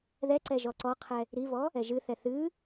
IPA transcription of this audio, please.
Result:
ð ɛ ǀ ɛ ʒ ɔ ǀ ɔ qʰ ɛ | ɾ i v ɔ | ɛ ʒ ɨ θ ɛ θ ɨ

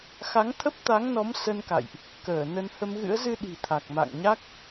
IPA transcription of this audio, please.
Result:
x a˨˦ ŋ t̪ʰ ə˦˥ p̚ t̪ a˨˦ ŋ n ɔ˨˦ m s ə˧ n k a̰˧˨ j ʔ | k əː˧˩ n ə˧ n h ə˧ m ɣ ɨ̰˧˥ ə̯ z ɨ˧ ɗ i̤˨˩ t̪ʰ a˨˩ k̚ m a̰˧˨ ŋ ɲ a˦˥ k̚

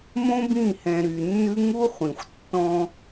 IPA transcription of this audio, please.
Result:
m õ˦ b ĩ˦˨ h ɛ̃˨ ɾ y˨ nː ʉ˦ ŋ u˦ χʷ ĩ˨ xʷ tː ɔ̃˦

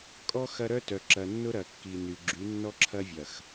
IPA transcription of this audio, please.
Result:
kʼ ɔ˦ x ɐ˦ ɾ œ˦ t œ˨ ǁ ɐ˨ nː ʊ˦ ɾ ɐ˨ kː i˨ n y˨ ɡ͡ǁ y˨˦ nː ɔ˦ ǁʰ ɐ˦ vʲ ɐ˨ x

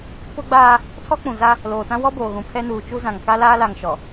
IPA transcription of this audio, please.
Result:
p ʊ˦ ɡ͡b aː˦ | tʰ ɔ˦ k͡p ũ˨ z a˦ | l oː˨ t ã˦ w ɔ˦ b oː˨ ɣ ũ˨ pʰ ɛ˦ n uː˨ t͡ʃ u˦ z ã˨ ŋ k a˦ l aː˦ l a˨ ŋ ʃ ɔ˨

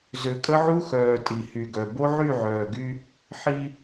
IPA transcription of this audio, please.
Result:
z ø˨ kʼ ə˦ ʕ u˦ x œː˨ tʼ i˨ h y˨ ɡ œ˨ b o˦ ʕ y˦˨ ʕ œː˨ ɡ y˦ | ħ i˦

